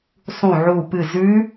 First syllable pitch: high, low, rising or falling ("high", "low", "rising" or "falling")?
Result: falling